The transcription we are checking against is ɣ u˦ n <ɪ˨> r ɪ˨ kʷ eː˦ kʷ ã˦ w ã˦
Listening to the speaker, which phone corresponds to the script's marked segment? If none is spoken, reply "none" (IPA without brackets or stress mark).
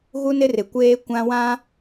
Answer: ɪ˦